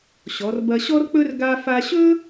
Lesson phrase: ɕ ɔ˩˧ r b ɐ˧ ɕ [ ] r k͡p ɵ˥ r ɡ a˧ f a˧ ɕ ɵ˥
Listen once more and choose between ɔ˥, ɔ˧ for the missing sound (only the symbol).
ɔ˥